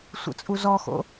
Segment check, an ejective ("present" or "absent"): present